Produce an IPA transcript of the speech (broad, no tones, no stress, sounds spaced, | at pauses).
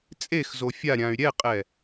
t͡sʼ e x z o fʲ a ɾʲ ã y̯ ɾʲ ɛ qʼ ɛ